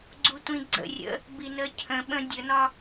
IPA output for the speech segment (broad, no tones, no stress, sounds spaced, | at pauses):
ɡ͡ǀ u tʷ ĩ ɡ͡ǀ ə̰ rʲ ə̰ | b i n ə cʰ ə̃ ɓ ə̃ dʲ ə n ɒ